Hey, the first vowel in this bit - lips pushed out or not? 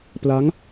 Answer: no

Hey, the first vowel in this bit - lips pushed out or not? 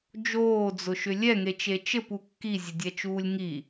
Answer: yes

